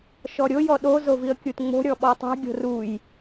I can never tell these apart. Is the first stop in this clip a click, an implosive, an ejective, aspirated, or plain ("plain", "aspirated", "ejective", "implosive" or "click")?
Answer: implosive